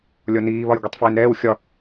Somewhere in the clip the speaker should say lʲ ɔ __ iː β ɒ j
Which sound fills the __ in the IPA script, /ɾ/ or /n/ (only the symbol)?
n